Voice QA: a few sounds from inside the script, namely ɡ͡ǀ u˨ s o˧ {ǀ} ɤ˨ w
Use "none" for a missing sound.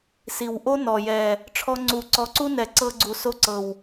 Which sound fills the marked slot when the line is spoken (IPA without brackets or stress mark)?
ǀ